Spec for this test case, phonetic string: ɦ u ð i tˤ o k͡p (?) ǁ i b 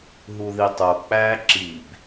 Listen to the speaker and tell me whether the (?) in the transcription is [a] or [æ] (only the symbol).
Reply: æ